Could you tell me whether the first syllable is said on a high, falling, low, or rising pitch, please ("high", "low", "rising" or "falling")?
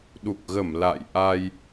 low